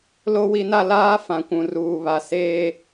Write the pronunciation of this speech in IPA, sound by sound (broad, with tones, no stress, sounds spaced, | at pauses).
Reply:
l o˦ w i˦ n a˦ l aː˦ f ã˨ kʷ ũ˨ r uː˨ β a˨ s eː˦